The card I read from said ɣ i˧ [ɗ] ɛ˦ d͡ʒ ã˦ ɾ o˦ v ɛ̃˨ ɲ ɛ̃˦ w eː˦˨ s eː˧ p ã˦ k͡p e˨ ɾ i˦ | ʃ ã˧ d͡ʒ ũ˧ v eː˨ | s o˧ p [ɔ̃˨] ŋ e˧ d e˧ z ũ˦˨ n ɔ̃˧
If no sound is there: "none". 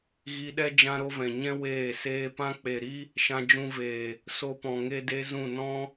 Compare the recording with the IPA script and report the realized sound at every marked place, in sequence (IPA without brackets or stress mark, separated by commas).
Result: ɗ, ɔ̃˨